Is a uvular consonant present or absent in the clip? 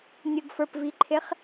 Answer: present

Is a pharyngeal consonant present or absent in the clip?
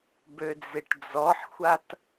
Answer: present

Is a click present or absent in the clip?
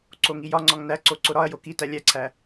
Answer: present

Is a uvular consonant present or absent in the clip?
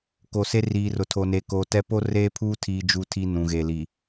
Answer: absent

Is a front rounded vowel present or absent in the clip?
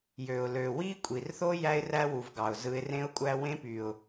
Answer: present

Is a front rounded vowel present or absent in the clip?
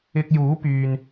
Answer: present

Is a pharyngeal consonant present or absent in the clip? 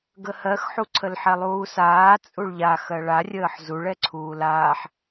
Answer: present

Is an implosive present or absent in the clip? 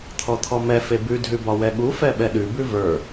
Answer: present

